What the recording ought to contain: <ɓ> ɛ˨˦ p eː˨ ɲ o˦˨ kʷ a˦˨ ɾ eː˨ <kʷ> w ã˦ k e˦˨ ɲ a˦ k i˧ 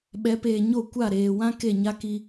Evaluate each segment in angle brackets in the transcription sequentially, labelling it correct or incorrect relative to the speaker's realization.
correct, incorrect: none

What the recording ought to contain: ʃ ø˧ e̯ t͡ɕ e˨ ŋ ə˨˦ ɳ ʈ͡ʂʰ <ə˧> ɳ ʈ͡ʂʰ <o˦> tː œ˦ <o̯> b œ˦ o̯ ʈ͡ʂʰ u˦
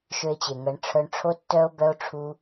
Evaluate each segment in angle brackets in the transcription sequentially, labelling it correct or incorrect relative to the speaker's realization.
incorrect: œ˧, correct, correct

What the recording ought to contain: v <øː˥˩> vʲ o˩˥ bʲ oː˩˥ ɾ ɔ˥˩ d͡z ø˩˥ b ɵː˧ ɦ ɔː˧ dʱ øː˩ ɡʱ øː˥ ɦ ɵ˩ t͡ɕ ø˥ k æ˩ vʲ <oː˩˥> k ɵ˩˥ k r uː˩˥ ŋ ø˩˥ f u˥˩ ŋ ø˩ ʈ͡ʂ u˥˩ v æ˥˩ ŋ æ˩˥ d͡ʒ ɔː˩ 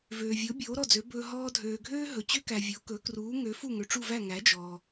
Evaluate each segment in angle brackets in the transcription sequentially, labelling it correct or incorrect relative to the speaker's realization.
incorrect: øː˩, incorrect: o˩˥

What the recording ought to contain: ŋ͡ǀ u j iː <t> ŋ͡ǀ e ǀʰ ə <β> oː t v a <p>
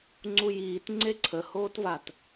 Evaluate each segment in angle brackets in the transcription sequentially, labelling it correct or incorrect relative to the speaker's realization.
correct, incorrect: h, incorrect: t

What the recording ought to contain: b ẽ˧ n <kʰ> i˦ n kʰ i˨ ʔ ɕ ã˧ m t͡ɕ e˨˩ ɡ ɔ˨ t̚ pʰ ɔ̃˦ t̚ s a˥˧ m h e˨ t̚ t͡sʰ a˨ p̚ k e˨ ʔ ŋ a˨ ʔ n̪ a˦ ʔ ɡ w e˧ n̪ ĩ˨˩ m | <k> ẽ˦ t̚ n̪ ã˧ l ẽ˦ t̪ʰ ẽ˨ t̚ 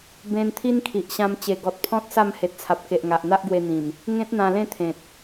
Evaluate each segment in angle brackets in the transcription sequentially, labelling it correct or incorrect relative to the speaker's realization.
incorrect: t̪ʰ, incorrect: ŋ

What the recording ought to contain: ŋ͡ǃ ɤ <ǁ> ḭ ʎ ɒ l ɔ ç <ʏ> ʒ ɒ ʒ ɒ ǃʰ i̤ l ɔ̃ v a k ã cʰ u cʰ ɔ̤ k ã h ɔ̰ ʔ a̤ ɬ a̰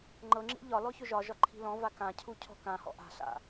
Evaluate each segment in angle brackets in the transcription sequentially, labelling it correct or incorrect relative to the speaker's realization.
incorrect: ŋ͡ǁ, correct

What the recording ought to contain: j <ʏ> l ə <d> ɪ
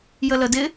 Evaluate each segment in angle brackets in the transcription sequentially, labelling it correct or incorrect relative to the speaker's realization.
incorrect: ə, correct

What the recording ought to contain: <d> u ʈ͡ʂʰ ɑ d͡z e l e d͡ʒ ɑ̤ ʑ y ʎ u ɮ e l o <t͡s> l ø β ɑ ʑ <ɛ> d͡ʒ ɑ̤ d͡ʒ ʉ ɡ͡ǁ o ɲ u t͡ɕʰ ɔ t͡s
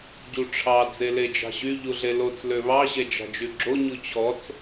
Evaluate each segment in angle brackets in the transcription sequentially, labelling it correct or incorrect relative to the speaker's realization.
incorrect: ɟ, correct, correct

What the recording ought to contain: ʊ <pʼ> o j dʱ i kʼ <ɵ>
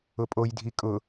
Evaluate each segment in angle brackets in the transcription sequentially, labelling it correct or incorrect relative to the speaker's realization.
correct, incorrect: ʊ

